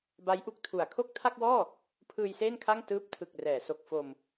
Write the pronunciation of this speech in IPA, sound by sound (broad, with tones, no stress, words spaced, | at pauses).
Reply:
ba˦˥jʔu˦˥k̚tʰu˨˩a̯ kʰo˥˩k̚tʰa˥˩k̚wɔː˥˩ | pʰɯː˧jseː˥˩nkʰa˥˩ŋ tɯː˦˥p̚tʰɯ˨˩k̚rɛː˩˦ so˨˩k̚fo˧m